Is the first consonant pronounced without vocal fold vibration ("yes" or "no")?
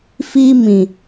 yes